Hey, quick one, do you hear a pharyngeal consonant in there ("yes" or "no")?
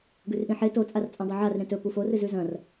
yes